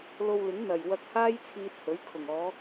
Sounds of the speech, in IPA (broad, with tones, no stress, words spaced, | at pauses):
lo˧wlɪ˨˥ŋn̪ɐ˨˩j wɐ˧k̚haː˥j t͡sʰiː˧t̚hɵ˨˥ɥkʰʊ˨˩ŋ ɔː˨˧